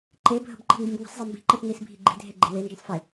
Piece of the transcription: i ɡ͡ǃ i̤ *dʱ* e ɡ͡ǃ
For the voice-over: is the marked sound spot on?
yes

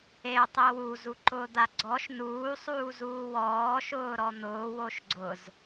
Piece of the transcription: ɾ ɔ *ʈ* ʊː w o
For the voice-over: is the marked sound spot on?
no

